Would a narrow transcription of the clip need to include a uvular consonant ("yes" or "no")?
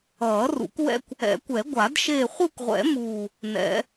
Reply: yes